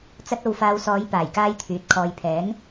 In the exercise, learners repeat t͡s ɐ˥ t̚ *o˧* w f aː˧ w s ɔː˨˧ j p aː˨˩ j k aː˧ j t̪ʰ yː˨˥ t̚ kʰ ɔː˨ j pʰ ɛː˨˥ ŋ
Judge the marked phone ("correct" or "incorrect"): correct